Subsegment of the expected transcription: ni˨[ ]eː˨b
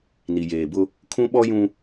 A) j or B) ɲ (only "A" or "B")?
A